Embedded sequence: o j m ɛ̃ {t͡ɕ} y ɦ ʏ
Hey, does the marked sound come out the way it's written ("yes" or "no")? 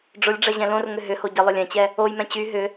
yes